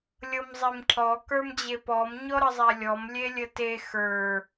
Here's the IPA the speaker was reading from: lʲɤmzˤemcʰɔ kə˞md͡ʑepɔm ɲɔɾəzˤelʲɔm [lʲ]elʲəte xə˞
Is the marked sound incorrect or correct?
correct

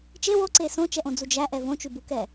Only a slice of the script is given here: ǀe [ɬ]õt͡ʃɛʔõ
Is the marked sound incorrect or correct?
incorrect: s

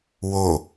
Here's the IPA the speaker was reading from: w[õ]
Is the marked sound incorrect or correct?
incorrect: o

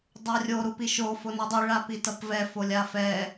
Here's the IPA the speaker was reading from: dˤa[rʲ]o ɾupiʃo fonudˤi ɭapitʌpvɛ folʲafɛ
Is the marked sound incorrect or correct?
correct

